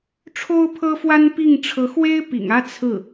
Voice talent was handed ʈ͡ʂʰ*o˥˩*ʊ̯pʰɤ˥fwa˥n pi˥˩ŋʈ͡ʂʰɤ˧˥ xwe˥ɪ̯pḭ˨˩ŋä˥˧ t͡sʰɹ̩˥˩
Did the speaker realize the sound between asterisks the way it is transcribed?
no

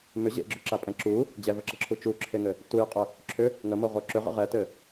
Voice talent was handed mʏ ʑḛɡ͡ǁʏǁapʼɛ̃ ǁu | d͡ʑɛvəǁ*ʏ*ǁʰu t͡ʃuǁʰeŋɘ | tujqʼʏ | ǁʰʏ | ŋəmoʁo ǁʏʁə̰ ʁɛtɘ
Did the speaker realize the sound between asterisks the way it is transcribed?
no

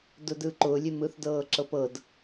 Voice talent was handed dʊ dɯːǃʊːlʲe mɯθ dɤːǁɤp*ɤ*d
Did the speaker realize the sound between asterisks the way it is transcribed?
yes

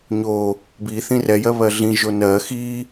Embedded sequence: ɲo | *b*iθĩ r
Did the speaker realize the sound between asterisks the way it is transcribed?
yes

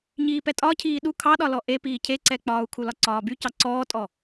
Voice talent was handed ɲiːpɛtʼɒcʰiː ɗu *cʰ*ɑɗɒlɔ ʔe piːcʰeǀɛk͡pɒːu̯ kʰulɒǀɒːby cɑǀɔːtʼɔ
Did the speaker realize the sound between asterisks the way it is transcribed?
no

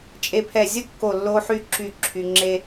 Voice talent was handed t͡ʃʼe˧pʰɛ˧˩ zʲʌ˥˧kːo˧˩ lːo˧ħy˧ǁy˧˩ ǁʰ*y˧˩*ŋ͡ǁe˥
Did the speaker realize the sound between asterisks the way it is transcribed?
no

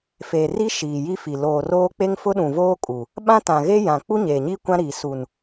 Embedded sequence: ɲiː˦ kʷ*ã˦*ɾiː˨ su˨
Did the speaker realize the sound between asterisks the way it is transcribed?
yes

